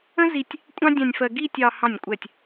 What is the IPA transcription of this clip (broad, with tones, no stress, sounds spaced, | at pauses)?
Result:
ə̃˥ z i˧ tʲ | kʷʼ ɑ̃˥ dʲ ɑ̃˧ nʲ f ɜ˧ ɡ i˥˧ tʲ ɑ˧ h ɑ̃˧˩ nʲ kʷʼ ɛ˧˩ tʲ